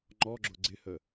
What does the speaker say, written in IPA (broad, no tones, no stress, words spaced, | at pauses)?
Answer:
ŋ͡ǃɔɡ͡ǁʊ ɡ͡ǀɪhə